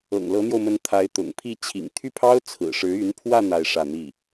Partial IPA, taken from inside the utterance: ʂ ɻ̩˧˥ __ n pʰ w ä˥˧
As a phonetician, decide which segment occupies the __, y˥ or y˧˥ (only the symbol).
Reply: y˧˥